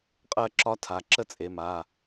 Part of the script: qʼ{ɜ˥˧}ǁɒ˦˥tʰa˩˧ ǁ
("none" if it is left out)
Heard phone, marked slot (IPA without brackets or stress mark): ɜ˥˧